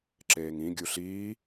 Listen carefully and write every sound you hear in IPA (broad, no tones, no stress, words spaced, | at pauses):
ǁeːŋĩ ɡʲuɬiː